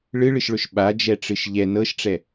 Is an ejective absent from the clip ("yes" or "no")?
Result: yes